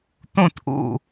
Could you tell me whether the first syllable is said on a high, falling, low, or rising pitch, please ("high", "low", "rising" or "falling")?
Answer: falling